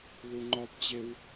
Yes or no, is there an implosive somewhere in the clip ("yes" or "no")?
no